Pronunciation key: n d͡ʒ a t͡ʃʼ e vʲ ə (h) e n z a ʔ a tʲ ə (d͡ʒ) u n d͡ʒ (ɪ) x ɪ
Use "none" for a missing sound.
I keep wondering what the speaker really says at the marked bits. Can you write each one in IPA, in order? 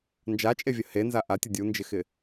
h, dʲ, ɪ

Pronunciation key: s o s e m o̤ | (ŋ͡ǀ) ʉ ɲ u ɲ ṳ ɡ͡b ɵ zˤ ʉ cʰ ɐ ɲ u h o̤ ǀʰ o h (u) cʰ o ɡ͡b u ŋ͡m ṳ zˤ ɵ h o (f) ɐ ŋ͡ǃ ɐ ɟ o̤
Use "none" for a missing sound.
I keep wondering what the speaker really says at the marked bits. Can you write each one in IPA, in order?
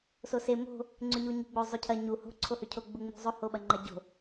ŋ͡ǀ, ʉ, ɓ

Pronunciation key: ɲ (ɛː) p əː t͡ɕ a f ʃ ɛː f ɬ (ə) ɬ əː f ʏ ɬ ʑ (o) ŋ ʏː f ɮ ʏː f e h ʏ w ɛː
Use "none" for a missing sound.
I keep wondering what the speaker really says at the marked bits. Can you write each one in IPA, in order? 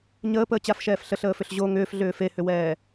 əː, ə, o

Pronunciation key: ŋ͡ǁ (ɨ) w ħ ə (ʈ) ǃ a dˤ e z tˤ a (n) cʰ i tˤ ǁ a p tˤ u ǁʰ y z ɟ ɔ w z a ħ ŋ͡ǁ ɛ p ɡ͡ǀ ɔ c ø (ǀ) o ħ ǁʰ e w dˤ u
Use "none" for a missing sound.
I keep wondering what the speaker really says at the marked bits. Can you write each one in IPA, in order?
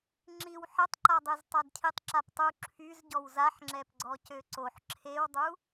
i, tˤ, d, ǀ

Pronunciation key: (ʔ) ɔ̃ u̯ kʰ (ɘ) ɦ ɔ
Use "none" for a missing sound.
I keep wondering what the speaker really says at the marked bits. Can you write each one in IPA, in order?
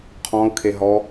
qʰ, e

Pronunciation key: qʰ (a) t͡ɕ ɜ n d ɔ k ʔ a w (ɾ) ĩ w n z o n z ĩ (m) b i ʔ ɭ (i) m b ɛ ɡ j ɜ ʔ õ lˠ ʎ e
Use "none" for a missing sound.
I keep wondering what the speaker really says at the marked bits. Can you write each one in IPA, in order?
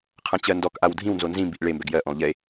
ã, dʱ, m, e

